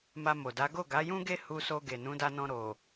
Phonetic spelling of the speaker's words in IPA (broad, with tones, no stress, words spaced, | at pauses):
ma˧mo˨da˨˦ ɡo˦˨ɡa˨˦jũ˦ɡe˦ hu˧so˧ ɡe˨nũ˨˦da˧nɔ̃˧ ɾo˨